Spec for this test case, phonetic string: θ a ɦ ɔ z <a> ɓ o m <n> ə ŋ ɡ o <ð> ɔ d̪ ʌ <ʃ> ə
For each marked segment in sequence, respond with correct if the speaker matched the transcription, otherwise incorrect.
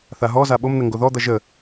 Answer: correct, correct, correct, incorrect

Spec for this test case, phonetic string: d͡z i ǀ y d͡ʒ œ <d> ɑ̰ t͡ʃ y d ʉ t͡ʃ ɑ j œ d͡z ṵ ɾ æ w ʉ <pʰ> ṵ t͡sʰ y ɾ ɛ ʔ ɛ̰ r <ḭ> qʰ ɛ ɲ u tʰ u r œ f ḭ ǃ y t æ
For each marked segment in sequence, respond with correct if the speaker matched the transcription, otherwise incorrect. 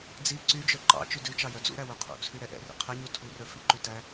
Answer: incorrect, incorrect, correct

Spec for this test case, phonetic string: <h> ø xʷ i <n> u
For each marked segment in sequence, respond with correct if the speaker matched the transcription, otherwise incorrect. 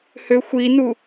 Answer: correct, correct

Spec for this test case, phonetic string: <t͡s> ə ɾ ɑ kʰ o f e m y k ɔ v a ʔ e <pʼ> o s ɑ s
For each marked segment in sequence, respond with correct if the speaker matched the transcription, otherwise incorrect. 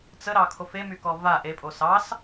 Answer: correct, correct

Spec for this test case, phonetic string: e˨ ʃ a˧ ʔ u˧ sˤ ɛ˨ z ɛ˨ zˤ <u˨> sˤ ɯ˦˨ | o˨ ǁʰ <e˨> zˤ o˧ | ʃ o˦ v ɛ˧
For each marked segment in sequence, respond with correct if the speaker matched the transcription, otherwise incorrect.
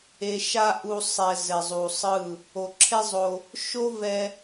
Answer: correct, incorrect

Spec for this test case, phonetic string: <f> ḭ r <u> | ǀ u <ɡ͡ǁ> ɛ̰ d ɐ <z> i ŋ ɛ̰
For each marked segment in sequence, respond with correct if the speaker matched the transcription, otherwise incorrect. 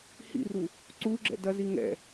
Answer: incorrect, correct, correct, correct

